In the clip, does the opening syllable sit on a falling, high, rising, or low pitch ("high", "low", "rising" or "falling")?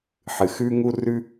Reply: low